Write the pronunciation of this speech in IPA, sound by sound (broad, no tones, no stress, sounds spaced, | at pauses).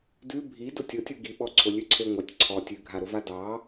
d ʉ bʱ i d ʊ tʲ ʊ tʲ u ɡ i ɓ ɔ ǀʰ ʊ lʲ ʉ ǀʰ e ŋʷ ɑ tʲ ǀʰ ɔ tʲ ʉ ɡʱ a ɾ ʊ v a d ɑ